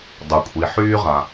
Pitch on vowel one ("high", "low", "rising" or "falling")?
low